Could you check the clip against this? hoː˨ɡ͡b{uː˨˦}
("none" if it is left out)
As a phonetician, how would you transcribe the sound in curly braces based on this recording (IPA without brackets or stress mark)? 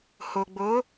oː˨˦